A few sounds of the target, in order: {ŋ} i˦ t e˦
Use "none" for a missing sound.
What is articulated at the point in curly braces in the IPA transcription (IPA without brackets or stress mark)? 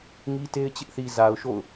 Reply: ŋ